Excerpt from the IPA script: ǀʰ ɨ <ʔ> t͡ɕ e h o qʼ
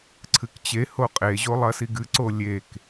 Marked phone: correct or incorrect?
incorrect